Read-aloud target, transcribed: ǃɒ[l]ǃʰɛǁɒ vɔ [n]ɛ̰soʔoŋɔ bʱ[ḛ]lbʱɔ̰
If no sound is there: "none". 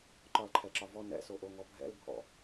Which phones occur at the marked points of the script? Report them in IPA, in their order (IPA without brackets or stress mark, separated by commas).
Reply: l, n, ɛ̰